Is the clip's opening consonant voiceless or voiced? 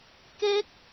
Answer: voiceless